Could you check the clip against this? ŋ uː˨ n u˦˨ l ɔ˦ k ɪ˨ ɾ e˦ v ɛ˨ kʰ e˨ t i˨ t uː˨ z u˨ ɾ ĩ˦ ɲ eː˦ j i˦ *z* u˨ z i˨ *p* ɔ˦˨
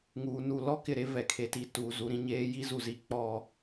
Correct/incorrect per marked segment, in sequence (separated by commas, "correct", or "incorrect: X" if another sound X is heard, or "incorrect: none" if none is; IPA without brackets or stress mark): correct, incorrect: k͡p